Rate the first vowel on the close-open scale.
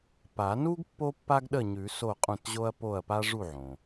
open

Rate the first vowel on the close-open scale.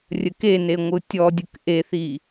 mid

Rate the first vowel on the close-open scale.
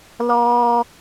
mid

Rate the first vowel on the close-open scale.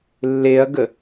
mid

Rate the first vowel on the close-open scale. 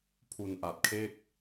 close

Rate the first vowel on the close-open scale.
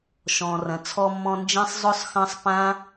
mid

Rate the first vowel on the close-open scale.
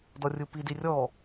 mid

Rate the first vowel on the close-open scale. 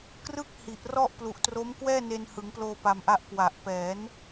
close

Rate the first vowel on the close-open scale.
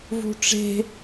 close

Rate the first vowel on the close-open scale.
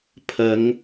open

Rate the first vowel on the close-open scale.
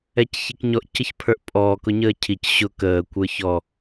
mid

